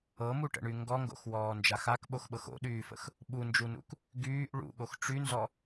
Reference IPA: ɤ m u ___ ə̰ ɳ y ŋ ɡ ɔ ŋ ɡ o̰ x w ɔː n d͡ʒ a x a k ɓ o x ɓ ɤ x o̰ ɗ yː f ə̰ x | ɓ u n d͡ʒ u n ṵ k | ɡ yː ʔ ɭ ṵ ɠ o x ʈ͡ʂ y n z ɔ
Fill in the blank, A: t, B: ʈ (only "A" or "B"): B